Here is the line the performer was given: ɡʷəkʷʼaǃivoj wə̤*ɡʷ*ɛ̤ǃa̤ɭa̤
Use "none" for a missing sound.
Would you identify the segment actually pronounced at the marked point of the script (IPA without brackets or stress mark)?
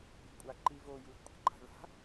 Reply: kʷʼ